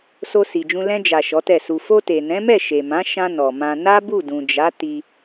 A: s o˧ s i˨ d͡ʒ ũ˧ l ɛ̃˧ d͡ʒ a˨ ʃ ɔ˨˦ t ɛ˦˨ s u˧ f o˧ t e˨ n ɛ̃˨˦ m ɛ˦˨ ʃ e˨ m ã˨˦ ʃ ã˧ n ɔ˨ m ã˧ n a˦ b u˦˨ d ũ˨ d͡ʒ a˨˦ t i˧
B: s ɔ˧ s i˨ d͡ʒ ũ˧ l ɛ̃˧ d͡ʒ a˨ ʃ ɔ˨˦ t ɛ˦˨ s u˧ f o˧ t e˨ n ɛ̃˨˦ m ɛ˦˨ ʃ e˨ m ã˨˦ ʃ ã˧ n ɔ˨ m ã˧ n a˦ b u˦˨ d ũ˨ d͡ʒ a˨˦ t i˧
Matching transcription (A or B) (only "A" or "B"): A